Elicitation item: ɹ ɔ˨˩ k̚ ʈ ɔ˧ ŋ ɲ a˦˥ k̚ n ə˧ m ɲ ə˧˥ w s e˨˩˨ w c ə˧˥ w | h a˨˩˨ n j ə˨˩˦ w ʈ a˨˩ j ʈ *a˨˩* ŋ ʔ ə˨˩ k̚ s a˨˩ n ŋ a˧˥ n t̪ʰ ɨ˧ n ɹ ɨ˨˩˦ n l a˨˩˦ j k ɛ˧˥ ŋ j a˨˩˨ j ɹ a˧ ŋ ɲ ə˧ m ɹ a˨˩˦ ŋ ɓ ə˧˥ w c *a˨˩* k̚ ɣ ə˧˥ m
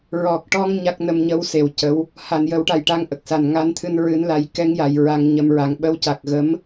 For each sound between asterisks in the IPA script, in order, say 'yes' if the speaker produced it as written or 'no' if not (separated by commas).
no, yes